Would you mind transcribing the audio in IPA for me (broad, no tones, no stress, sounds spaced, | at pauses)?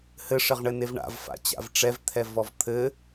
h ɘ ʂ ɘ ʁ ɳ ɘ n e v ɳ a̰ v f a̰ t͡ɕ a̰ v ʈ͡ʂ ɛ v t̪ʰ ɛ v ɔ v t̪ʰ ɘ